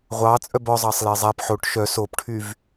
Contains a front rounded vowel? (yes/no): yes